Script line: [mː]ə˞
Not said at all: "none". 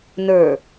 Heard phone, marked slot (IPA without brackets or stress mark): n